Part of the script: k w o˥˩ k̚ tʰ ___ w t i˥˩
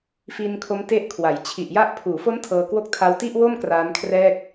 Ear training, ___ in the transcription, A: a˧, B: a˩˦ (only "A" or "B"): A